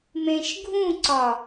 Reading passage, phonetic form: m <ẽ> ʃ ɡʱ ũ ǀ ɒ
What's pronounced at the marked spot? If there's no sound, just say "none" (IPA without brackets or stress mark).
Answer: ẽ